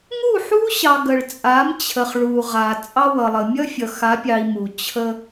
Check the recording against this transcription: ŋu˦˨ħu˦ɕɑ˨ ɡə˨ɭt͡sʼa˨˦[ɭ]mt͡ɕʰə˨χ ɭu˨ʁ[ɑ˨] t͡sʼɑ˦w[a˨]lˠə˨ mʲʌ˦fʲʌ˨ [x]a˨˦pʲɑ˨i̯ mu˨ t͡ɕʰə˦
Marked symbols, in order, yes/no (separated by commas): no, no, no, yes